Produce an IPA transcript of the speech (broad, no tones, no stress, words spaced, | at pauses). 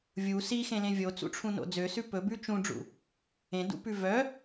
vʲu sixẽlẽ vʲot͡sṵʈ͡ʂʰũno̰ d͡zøsʉ pɵbʉ t͡ʃũɖ͡ʐṵ | ẽdṵpʉ vœ